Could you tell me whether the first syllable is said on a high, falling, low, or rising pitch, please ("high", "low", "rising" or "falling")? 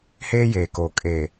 high